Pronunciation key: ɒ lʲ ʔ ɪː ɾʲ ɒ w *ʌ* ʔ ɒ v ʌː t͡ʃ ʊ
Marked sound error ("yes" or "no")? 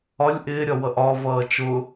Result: no